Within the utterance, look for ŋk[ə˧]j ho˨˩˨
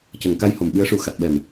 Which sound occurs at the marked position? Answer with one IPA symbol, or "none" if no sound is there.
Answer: a˧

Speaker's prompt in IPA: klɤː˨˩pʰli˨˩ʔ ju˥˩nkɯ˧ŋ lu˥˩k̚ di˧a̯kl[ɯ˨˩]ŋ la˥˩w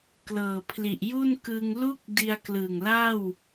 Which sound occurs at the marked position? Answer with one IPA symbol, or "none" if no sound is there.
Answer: ɯ˨˩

